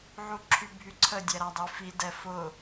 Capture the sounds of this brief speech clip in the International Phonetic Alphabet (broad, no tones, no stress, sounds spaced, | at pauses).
ʕ u ǁʰ y bʱ y ǀʰ ə dʲ ɛ ɾ a dˤ i f i d ɛ f ʊ